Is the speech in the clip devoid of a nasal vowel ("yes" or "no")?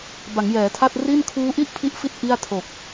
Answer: yes